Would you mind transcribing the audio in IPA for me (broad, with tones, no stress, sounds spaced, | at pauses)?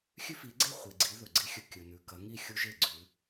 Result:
xʲ ʉ˦ f i˨˦ ɡ͡ǀ e˥˨ χʷ i˨ ɡ͡ǀ i˨˦ ð ɵ˨ ɡ͡ǀ i˦ xʲ ɵ˦ kʲ ɵ˨ n ʉ˨ k ɐ˨˦ ŋ i˥˨ xʲ u˦ ʒ e˥˨ ɡ͡ǀ ʉ˨˦